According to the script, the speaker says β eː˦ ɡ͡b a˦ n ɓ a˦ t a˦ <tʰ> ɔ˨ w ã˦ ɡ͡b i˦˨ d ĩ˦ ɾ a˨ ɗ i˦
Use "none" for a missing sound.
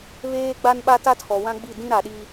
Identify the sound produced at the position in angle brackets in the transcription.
tʰ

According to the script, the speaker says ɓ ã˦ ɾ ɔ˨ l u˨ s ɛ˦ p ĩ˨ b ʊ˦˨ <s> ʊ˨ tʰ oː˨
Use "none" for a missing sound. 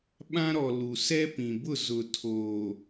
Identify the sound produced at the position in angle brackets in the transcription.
z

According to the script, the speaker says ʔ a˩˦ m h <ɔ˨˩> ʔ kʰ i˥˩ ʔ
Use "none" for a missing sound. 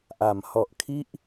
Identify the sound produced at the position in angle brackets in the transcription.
ɔ˨˩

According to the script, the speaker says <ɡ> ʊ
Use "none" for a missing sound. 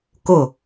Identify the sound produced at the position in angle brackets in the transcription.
k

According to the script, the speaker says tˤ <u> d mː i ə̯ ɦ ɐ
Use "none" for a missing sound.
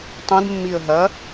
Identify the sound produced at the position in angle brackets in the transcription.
ũ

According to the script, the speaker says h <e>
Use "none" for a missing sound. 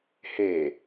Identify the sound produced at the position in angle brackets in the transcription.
e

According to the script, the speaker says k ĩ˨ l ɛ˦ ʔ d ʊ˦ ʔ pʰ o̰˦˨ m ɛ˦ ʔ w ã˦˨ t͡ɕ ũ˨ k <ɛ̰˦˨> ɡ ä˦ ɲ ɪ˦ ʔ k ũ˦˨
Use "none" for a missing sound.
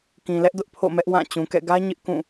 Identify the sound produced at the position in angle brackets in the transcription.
ɛ̰˦˨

